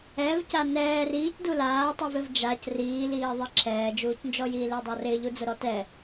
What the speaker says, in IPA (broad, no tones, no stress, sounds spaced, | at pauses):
ɛ v c a n ɛː r iː c d u l aː tˤ i v ɪ v d͡ʒ a c r iː l iː ðˤ i ǁʰ ɛː d͡ʒ uː c n d͡ʒ ɔ j iː l ɪː dˤ a r ɪː ʎ u d͡z ʊ ɾ ɔ t ɛ